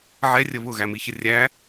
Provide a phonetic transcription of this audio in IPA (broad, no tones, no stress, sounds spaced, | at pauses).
ʕ ɛ rʲ ə β ʊ ɣ æ m i ç ə rʲ æ